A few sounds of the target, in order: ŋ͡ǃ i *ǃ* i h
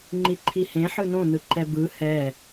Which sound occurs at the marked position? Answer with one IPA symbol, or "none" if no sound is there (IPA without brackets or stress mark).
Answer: ǃʰ